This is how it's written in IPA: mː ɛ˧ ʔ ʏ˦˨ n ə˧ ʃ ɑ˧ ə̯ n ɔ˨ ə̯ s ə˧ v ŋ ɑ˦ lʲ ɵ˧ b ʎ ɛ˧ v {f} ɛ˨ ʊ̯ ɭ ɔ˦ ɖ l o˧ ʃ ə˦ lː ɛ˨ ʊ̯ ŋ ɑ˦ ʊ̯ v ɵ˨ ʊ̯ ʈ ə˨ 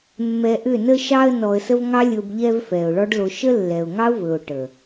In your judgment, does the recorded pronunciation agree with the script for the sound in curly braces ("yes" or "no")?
yes